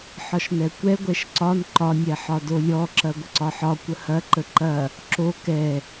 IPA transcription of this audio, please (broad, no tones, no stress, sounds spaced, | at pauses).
ħ ɒ ʃ n ɛ kʷ ɛ ɡʷ ɛ ʃ ǀ ɒ n ǃ ɒ nʲ ɛ ħ ɒ d o lʲ ɔ ǁ ɐ ɡʷ ə ǀ ɒ ħ ɒ kʷ ə h ɐ ǃ ə ǃ ɐ | ǁ o k ɛ